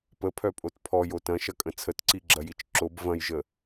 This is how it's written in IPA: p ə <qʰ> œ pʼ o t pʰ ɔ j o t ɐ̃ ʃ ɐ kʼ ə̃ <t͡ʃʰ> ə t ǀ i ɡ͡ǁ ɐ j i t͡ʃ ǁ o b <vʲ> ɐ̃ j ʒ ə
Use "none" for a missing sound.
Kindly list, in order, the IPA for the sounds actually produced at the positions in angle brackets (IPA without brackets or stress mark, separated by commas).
pʰ, t͡sʰ, v